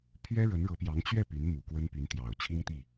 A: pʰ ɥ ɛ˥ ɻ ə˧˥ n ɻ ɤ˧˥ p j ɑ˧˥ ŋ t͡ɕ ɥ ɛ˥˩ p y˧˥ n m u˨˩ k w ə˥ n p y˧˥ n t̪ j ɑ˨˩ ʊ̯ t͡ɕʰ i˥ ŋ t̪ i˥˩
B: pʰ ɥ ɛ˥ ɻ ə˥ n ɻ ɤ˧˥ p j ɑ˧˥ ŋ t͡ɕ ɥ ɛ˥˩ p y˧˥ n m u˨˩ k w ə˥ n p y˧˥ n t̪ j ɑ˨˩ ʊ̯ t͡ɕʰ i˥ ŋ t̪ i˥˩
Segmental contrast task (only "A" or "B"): A